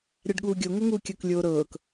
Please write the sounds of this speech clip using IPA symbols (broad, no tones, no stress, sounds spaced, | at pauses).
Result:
ɾʲ a ɖ ɠ uː ɡʲ o ŋ o ŋ uː kʲ ɤ k lʲ oː ɾ ɤː k